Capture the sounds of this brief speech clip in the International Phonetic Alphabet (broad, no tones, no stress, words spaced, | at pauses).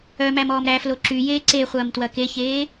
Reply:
œmæmɔːm ɾæflo ǁyjeː ǀeχʷɐːm twɐkeçeː